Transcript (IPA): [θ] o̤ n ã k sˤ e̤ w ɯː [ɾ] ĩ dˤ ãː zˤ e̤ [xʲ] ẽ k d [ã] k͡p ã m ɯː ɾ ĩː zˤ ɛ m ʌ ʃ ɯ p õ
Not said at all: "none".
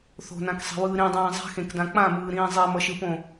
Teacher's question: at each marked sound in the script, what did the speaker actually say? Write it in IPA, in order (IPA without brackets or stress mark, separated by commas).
θ, ɾ, x, ã